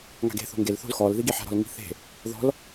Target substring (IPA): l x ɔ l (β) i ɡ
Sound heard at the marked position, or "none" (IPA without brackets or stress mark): ð